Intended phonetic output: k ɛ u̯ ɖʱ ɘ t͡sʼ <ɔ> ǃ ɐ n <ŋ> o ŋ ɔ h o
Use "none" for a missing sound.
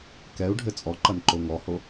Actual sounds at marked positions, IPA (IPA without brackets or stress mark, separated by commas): ɔ, ǃ